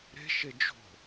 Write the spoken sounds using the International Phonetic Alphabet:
ɾ e̤ ʃ e d͡ʒ o̤

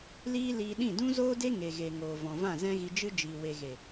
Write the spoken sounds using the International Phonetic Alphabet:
l iː˦ l iː˧ ɗ ĩ˦˨ d ũ˦ z oː˦ d e˦ ŋ e˨ ɣ e˨ ŋ oː˨ v ɔ̃˨ v ã˦˨ z ɛ̃˦ ɣ i˧ d͡ʒ ɨ˦ d͡ʒ iː˨ w e˨ ɣ e˨

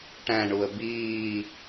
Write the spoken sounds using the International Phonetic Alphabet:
ʈ æ̃ ɳ u ə̯ b iː

